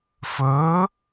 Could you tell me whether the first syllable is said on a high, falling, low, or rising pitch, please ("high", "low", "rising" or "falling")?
rising